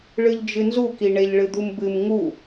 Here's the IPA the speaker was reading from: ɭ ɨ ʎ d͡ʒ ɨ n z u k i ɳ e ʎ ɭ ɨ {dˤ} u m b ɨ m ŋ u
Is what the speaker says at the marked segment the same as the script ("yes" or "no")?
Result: no